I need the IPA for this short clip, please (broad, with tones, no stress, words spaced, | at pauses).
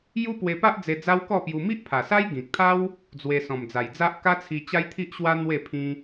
ju˦pwe˧pa˦ʔ d͡ze˧d͡za˦wkɔ˥˧pju˧ mi˦ʔpʰa˨˩sa˦j ɡĩ˨k̚t̪ʰa˦w | d͡zwe˧ sɔ̃˨˩md͡za˨˩jd͡za˦ʔ ka˦t͡sʰi˧ t͡ɕa˦jt̪ʰi˦ʔɕwa˦ n̪we˥˧pʰĩ˦